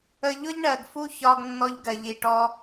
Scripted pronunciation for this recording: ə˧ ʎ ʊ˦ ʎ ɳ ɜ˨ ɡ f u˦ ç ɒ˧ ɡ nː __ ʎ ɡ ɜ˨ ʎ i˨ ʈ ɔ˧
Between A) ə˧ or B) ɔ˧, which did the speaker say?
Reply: B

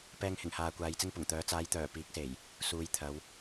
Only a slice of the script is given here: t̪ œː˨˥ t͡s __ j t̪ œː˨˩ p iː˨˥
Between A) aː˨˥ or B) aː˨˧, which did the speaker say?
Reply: B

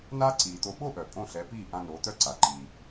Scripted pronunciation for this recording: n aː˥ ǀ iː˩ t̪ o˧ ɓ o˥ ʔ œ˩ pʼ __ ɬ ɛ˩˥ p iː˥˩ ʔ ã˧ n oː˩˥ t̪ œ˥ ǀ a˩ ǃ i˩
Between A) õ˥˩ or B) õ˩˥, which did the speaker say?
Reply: A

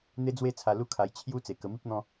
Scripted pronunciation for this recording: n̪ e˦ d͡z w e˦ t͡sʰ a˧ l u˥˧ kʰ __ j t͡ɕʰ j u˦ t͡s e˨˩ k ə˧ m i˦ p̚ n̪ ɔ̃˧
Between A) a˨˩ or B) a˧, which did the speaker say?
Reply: B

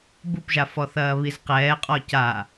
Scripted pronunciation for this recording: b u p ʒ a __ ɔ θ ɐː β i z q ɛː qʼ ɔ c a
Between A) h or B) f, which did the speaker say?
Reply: B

